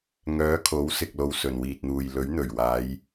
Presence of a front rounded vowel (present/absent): present